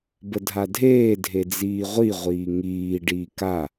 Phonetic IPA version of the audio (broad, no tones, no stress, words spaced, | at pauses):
bədʱadʱeː dʱed͡ziːʁʷi ʁʷiːŋiː ɖiːka